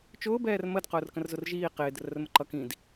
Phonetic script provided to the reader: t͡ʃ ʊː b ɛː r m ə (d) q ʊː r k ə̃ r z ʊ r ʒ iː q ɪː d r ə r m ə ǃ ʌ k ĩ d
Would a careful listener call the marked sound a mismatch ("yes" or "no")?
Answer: no